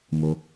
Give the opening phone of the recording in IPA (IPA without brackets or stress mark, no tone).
m